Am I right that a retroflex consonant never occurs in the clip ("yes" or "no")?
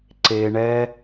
no